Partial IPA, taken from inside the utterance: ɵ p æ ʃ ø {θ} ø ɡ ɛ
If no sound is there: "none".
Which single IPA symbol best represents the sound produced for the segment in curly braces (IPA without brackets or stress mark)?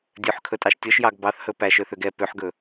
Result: θ